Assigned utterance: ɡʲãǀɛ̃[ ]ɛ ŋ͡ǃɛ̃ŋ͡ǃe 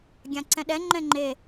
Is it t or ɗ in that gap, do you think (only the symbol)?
ɗ